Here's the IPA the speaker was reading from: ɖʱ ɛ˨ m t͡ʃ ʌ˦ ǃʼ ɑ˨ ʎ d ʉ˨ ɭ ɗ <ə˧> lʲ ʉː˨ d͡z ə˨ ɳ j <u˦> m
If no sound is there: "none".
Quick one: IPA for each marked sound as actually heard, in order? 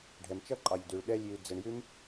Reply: ɛ˧, ʉ˦

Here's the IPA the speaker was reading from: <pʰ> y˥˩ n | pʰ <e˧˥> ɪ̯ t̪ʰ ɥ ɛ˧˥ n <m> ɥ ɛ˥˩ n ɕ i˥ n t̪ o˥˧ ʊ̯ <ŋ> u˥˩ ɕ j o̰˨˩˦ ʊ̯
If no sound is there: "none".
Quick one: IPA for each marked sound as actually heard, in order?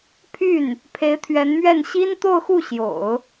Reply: pʰ, e˧˥, m, x

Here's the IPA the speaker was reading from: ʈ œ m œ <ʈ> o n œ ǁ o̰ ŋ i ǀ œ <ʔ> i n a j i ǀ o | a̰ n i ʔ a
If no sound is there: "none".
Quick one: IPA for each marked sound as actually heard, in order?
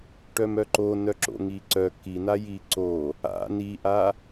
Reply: ǃ, k

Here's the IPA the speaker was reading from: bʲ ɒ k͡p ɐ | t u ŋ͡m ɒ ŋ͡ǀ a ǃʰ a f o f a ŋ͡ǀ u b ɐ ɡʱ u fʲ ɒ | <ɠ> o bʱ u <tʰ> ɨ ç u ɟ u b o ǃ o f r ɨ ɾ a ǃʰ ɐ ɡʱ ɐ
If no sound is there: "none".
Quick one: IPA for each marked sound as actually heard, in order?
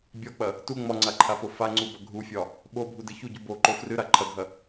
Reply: ɓ, d

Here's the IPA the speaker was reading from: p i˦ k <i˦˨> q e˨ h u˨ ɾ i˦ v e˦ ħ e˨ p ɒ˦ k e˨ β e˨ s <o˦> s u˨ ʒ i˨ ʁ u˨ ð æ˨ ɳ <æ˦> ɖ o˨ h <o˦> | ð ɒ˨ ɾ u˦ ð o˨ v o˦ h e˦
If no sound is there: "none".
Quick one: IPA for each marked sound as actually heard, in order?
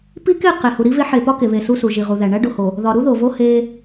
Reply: e˦˨, u˦, æ˦, o˨

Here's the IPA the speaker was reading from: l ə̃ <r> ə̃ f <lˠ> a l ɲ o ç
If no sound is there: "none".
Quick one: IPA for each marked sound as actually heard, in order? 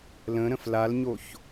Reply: ɾ, l

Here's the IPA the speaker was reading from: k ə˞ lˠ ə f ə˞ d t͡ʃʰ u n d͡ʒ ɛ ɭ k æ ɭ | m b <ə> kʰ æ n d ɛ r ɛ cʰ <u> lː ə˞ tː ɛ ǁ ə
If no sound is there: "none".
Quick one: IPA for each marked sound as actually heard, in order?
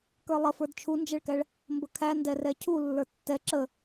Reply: ə, u

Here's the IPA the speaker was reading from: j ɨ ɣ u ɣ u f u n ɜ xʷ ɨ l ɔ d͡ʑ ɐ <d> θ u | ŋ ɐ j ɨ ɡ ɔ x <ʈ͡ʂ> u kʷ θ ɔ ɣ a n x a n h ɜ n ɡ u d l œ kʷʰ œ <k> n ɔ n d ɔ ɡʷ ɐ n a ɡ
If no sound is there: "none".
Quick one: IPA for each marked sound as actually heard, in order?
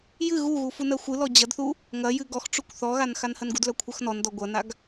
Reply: d, ʈ͡ʂ, x

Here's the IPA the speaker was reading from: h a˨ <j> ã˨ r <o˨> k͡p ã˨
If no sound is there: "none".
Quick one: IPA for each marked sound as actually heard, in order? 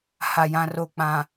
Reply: j, o˨

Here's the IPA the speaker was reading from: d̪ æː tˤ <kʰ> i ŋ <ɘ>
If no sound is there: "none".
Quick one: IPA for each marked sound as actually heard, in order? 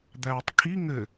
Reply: kʰ, ɘ

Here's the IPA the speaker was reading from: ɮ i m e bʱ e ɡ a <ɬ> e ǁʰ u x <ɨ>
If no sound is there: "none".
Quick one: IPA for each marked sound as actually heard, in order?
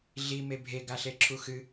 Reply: ɬ, ɨ

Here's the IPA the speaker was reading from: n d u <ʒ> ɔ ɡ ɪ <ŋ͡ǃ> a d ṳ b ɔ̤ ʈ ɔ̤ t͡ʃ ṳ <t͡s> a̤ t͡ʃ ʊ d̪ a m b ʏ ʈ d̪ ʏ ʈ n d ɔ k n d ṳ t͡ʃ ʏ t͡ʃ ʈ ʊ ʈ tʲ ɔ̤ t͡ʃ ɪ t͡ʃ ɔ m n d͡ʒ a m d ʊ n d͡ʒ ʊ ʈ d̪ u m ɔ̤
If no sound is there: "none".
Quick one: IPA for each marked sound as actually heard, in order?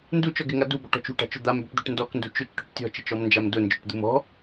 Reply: t͡ʃ, ŋ, ʈ

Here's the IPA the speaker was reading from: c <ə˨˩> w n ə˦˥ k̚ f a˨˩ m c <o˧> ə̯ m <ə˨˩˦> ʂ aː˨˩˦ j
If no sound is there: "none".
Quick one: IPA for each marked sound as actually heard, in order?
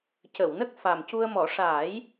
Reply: ə˨˩˨, u˧, ɔ˨˩˦

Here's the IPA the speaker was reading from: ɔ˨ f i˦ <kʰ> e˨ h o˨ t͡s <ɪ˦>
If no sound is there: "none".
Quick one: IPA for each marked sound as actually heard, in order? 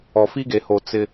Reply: ɡ, ɪ˦

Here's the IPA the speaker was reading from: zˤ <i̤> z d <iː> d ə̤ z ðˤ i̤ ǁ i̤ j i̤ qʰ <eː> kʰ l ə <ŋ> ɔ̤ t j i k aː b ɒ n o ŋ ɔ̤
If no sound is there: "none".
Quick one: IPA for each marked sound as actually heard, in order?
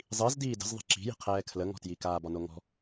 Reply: i, iː, ɛː, ŋ

